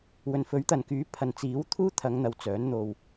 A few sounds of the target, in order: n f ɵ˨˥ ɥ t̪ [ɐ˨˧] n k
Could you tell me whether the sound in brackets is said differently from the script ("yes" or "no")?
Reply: yes